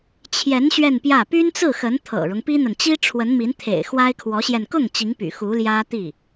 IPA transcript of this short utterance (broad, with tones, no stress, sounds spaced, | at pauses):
t͡ɕʰ j ɛ˧˥ n ɕ ɥ ɛ˥˧ n p j ä˥˩ p y˥ n t͡s ɹ̩˥˩ x ə˧˥ n t̪ʰ ɤ̰˨˩ ɻ ʊ˦ ŋ p i˥ n̪ ə˨ n t͡ɕ i˥ ʈ͡ʂʰ w ə˧˥ n m i˧˥ n t̪ʰ ḛ˨˩ ɪ̯ x w a˥ ɪ̯ kʰ w ɔ˧˥ ɕ j ɛ˧ n k ʊ˥˩ ŋ t͡ɕ i˧˥ ŋ p y̰˨˩ x u˧˥ l j ä˥ t̪ i˥˩